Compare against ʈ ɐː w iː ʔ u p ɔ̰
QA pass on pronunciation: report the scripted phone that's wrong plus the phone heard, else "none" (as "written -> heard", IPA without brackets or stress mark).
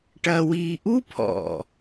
p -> pʰ